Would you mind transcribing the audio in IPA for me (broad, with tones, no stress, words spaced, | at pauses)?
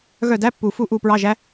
ɣœ˦˨dæ˧˥˧pːu˨˩˦fu˦˨ ʔuː˦˨pɹɑ˧˥˧ʒæ˦˥